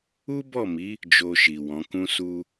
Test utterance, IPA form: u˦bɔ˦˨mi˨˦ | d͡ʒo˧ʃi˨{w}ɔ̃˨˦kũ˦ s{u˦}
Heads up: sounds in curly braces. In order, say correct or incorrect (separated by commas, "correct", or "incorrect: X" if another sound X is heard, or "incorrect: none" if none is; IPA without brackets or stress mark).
correct, correct